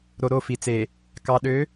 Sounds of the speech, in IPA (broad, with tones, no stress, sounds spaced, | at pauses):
ɾ o˨ ɾ o˦˨ f i˨ t͡s e˨ | k ɑ˨ ɗ ø˨˦